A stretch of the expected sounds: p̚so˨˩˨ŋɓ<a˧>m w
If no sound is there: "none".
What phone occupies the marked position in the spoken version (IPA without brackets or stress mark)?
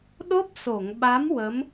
a˧˥